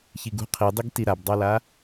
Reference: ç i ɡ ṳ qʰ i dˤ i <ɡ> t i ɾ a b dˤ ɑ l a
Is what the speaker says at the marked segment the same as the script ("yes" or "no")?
yes